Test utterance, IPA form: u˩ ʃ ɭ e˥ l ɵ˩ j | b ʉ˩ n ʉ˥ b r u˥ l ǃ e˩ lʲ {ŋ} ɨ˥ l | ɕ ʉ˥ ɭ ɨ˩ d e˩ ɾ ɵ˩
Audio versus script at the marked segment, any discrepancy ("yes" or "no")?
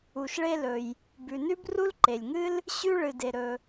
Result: no